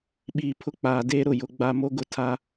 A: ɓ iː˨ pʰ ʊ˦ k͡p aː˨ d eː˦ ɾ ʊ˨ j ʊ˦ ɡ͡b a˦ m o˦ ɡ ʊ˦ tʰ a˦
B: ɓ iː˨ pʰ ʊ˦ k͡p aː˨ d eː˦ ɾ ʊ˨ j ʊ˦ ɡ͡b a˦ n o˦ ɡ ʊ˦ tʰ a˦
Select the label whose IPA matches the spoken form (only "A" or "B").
A